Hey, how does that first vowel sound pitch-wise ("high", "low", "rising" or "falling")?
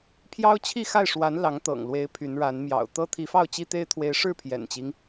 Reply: high